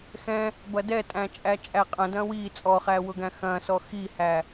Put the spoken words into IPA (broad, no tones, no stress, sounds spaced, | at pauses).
x ɛ̃ | b ɐ d ɛ tʼ æ̃ t͡ʃʼ æ t͡ʃʼ æ qʼ ɐ̃ d ɐ̃ w i t͡sʼ ɔ χ æ w ʊ ɡ æ̃ x ɐ̃ s ɔ x i h æ